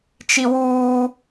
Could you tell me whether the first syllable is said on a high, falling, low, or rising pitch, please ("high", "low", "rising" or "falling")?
high